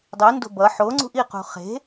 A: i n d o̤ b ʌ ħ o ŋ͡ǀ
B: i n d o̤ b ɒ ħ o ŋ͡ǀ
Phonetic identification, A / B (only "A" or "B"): A